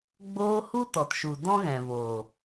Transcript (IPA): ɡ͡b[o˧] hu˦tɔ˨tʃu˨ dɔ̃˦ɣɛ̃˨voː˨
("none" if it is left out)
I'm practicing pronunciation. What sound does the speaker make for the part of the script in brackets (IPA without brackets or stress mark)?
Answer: oː˧